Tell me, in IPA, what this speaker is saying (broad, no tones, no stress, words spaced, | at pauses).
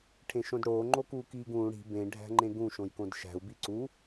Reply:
ʈʰẽʃõdɽoː ŋ͡ǃokuːkiːɡũː ɽi̤ bẽ ɖʱæ̤ŋ͡ǃẽɡũ ʃõjkõdʃæ̤u̯ biǀu